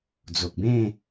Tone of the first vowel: low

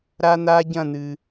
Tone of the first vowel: high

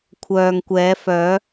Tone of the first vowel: low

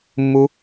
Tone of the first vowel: high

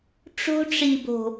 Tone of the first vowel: high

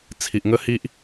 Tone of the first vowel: low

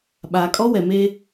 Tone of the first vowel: low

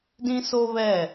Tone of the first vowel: high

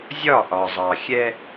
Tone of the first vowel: falling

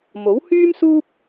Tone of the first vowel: rising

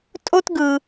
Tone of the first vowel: high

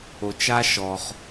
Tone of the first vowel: low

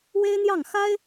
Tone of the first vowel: high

